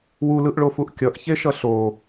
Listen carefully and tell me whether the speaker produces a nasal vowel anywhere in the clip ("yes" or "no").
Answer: no